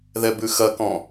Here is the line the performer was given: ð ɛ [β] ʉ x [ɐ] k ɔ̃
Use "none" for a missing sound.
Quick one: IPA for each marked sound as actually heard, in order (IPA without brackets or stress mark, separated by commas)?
b, ɐ